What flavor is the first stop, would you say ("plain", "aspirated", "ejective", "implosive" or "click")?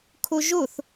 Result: aspirated